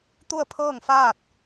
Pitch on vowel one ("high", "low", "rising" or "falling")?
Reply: falling